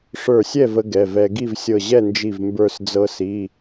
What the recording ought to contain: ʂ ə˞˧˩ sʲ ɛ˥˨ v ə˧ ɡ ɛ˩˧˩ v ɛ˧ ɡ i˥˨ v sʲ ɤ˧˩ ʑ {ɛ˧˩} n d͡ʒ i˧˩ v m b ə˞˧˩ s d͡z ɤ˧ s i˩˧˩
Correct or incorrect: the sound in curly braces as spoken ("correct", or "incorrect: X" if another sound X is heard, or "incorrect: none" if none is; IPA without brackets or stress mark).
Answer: incorrect: ɛ˥˨